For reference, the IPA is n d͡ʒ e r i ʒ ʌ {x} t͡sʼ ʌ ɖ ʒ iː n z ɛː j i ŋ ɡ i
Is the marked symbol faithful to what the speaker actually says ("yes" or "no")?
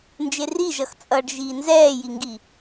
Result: yes